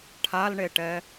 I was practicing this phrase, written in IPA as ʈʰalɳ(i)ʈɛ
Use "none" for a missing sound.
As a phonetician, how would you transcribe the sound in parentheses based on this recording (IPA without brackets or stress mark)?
e